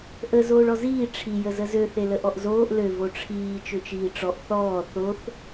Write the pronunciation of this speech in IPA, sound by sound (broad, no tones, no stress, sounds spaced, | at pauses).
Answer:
ʔ ə z oː ɭ ɔ z iː ʈ͡ʂʰ i j ə z ə z ø θ e l ə ʔ ɔ ʔ z oː ʔ l ø v o ʈ͡ʂʰ iː t͡ʃ ø t͡ʃ iː ʈ͡ʂ ɔ ʔ θ ɔː θ o θ